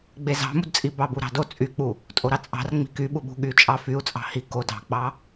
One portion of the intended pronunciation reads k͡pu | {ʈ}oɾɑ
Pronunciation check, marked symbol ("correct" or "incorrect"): incorrect